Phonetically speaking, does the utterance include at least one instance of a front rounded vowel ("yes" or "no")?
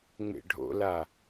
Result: no